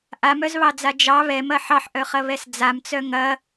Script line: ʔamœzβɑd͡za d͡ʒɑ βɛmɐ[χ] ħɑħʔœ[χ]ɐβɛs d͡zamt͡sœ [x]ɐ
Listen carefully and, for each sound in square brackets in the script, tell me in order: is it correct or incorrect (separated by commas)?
incorrect, correct, incorrect